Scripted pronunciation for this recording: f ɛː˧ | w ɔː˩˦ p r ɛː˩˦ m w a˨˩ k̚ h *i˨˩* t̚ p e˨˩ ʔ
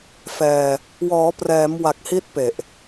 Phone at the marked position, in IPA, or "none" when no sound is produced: i˦˥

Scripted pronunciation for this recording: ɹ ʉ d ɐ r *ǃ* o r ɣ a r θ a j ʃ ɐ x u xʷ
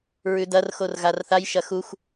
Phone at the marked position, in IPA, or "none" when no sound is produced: x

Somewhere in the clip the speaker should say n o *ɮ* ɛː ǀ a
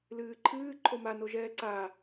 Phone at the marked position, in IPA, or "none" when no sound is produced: ʒ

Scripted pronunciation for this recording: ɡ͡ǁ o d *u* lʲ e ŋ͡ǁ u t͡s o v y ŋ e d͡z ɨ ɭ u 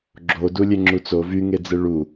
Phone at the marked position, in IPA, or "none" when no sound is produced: u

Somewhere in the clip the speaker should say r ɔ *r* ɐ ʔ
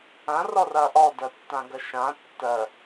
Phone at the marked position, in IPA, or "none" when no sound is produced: r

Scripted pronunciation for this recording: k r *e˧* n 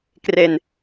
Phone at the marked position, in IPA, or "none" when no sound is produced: e˧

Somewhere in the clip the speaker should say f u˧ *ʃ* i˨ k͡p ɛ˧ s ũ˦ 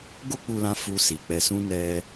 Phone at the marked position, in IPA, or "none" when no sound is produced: s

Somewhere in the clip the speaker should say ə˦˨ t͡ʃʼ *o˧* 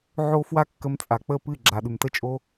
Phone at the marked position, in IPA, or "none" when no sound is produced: o˧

